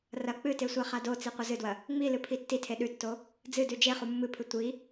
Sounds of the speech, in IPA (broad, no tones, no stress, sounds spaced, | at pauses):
r ɐ k͡p ɨ t e sʷ a χ a d o t͡s i qʷ ɐ z ɨ d w ɐ | ŋ͡m i l ɨ pʰ i tː i tʰ e ɗ ʉ tː o | d͡z ɨ d ʉ d͡ʒ e χ u mː ɨ pʰ ɨ tʷ i